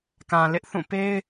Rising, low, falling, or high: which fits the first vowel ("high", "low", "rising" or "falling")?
low